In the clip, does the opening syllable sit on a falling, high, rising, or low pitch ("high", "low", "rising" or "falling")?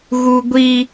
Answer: high